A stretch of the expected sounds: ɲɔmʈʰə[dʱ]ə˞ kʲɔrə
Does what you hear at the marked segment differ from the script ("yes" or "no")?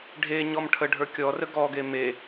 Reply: yes